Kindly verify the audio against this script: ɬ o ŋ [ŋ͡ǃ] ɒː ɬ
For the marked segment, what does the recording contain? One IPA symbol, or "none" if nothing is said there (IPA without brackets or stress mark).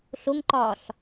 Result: ǃ